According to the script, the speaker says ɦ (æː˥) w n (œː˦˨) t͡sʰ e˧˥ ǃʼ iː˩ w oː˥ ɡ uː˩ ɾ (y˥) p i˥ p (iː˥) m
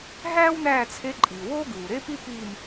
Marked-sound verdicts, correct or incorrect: correct, incorrect: æː˦˨, incorrect: e˥, incorrect: iː˦˨

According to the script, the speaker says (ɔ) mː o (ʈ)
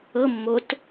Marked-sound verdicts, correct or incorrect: incorrect: ɤ, incorrect: t

